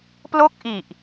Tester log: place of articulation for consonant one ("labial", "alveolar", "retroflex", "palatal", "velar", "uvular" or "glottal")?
labial